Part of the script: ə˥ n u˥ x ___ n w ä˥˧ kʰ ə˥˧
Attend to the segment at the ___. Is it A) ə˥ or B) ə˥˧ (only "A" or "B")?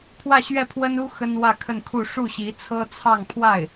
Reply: A